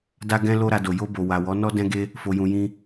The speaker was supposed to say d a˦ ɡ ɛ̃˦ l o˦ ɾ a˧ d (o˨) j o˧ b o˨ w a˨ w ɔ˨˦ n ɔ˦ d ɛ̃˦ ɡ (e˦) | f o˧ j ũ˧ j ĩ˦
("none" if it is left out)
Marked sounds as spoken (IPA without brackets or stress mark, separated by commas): o˨, e˦